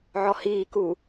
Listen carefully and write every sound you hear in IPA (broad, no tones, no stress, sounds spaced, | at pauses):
ʕ ɔ h iː k u